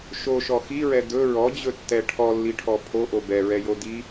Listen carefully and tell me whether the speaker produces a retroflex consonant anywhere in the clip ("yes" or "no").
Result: yes